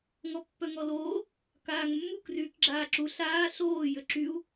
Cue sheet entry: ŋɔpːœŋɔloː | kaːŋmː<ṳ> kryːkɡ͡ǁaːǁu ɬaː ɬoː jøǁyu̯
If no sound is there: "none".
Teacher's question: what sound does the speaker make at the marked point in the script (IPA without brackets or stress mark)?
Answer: u